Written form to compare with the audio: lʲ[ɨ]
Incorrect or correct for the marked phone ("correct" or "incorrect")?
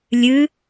correct